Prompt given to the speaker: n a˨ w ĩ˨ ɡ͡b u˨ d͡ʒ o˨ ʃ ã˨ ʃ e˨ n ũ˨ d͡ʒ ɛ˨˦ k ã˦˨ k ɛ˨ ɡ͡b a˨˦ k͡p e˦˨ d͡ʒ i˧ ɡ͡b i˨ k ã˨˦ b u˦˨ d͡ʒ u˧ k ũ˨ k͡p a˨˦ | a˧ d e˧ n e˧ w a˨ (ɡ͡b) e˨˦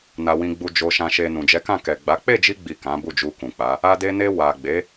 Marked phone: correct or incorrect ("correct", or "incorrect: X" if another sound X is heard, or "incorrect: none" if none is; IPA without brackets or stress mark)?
correct